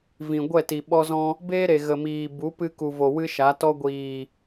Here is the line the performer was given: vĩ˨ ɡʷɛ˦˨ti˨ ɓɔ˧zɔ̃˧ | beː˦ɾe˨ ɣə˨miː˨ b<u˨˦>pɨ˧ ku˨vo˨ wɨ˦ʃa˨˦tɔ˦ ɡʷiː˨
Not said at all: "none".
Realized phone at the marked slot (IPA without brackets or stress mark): u˨˦